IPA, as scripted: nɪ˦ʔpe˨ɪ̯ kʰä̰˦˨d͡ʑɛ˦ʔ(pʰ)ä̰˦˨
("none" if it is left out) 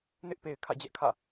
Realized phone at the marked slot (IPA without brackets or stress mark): kʰ